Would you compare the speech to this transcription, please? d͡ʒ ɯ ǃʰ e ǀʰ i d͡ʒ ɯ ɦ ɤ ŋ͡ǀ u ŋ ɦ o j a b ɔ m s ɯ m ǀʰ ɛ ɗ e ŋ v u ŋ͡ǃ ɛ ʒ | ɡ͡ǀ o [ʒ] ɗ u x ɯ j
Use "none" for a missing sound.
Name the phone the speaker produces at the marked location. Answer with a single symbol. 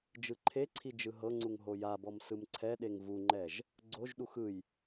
ʒ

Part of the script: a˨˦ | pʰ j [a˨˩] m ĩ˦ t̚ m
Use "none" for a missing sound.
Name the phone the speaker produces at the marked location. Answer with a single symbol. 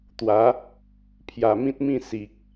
a˨˩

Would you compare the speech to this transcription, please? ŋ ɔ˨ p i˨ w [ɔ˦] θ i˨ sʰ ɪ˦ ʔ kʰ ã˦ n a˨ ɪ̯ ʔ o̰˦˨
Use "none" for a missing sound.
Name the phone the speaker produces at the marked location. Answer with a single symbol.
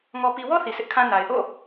ɔ˦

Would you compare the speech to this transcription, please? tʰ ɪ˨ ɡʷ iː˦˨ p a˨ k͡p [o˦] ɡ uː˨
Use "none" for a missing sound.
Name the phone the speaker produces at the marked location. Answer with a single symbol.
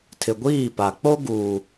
o˦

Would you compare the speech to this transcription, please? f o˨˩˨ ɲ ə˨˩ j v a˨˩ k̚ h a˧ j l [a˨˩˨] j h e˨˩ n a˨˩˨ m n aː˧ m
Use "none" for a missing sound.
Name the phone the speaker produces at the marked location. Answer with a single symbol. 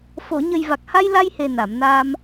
a˧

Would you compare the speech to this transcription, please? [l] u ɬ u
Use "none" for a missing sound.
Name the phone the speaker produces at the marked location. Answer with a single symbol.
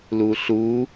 l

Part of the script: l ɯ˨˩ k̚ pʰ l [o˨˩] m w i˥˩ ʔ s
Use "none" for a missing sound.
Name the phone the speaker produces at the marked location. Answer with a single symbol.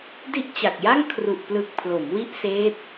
o˩˦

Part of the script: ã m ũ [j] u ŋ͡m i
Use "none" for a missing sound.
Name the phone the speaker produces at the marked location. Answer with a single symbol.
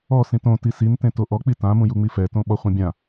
j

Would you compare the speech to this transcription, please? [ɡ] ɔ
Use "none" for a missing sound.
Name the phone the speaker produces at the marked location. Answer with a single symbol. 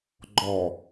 ɡ͡ǃ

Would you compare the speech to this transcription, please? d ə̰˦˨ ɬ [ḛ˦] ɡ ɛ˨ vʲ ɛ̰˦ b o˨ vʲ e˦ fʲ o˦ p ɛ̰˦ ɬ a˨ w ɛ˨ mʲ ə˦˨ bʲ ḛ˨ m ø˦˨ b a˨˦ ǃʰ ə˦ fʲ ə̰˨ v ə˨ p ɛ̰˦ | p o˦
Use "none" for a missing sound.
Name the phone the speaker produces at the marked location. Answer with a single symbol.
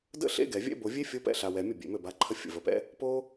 ḛ˦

